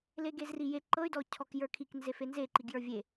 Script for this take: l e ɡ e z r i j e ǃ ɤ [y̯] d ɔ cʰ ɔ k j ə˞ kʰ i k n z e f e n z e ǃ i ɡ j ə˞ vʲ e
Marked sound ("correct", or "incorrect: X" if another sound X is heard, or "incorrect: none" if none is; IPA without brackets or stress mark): correct